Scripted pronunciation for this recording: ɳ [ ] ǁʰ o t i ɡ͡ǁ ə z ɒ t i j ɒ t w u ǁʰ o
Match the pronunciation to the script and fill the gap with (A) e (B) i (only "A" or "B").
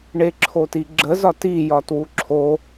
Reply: A